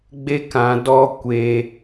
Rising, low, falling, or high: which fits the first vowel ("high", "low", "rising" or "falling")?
high